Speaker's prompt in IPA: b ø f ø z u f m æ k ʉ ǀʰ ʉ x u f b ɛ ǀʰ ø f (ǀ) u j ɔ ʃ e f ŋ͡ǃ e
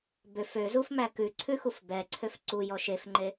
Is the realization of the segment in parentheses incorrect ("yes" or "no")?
no